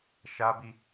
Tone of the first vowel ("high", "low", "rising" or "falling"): high